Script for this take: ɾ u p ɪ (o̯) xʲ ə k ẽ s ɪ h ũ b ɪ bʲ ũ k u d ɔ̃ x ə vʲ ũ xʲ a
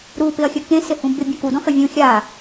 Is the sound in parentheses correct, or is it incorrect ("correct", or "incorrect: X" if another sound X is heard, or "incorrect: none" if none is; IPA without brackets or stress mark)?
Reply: incorrect: ɐ̯